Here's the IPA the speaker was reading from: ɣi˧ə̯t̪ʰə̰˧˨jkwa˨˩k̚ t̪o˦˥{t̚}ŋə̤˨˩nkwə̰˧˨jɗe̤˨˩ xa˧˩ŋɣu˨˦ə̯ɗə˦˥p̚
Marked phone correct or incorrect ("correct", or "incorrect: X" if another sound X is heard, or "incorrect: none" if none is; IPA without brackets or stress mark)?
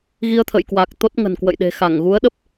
correct